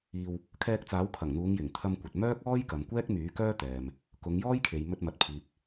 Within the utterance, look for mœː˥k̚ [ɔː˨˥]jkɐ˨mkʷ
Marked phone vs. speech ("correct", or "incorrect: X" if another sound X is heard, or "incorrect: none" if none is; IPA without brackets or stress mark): incorrect: ɔː˥